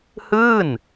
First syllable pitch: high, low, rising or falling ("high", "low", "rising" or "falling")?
falling